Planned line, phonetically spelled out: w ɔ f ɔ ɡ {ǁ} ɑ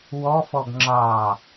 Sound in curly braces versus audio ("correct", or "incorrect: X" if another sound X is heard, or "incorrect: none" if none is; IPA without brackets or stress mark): incorrect: ŋ͡ǁ